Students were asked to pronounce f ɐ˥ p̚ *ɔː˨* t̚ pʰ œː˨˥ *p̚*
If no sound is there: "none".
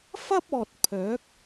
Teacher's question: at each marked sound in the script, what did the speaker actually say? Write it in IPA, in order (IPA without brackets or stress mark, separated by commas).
ɔː˨, k̚